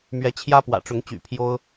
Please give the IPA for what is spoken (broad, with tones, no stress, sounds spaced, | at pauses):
m ɥ ɛ˨˦ t͡ɕʰ j ä˦ p w ä̰˨˩ ʈ͡ʂ ʊ˨˦ ŋ t͡ɕ y̰˨˩ pʰ j o˦ ʊ̯